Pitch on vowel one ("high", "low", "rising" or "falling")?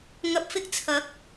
low